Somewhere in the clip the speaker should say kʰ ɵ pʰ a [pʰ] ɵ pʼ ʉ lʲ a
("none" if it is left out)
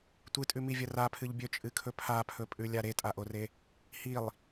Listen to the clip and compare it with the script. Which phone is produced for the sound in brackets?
pʰ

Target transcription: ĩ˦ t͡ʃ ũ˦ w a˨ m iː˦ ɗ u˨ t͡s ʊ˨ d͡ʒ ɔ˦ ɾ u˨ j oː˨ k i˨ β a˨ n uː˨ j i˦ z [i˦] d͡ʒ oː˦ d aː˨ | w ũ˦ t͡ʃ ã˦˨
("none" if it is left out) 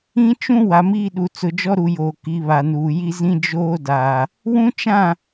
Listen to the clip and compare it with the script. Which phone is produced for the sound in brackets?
ĩ˦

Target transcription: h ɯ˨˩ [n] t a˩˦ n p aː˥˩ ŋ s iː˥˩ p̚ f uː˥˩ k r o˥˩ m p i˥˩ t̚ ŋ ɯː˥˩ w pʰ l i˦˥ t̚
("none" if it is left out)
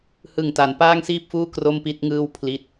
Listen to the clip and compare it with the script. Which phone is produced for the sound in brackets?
ŋ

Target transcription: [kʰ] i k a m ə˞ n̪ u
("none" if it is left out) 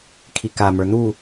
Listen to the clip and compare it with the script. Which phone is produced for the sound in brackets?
kʰ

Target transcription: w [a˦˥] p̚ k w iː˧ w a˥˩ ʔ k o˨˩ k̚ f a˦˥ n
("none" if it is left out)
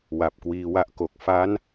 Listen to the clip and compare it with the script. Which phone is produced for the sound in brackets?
a˨˩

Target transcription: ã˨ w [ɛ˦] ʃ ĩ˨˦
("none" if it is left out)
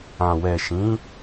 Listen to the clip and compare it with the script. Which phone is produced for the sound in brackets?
ɛ˨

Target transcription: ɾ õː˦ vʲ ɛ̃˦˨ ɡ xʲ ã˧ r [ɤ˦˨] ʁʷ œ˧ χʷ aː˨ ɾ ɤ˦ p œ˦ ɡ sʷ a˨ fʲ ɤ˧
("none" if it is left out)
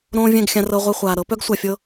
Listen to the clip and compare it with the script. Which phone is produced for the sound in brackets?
ɤ˧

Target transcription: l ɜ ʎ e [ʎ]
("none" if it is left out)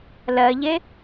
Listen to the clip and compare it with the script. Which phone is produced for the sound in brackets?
none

